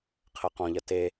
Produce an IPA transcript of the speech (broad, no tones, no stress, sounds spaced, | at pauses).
qʰ ɜ q ɔ̃ ʎ ɐ t e